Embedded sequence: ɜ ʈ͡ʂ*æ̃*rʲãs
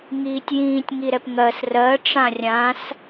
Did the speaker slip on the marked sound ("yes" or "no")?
yes